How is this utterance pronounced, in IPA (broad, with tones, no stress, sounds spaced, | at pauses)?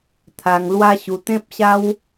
t̪ʰ a˧ ŋ l w a˦ ɕ u˧ t̪ ẽ˦ p̚ ɕ a˦ w